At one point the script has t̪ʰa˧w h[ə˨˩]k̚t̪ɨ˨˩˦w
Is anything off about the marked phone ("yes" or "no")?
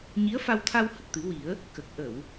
no